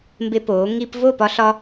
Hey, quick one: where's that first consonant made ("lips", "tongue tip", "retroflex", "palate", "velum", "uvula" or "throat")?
lips